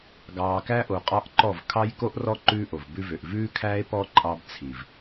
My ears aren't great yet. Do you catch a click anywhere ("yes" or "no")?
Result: yes